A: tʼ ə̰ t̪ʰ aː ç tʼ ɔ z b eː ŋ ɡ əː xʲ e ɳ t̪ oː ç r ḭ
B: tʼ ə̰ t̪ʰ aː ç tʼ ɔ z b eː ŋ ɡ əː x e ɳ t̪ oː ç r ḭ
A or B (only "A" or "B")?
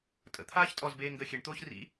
A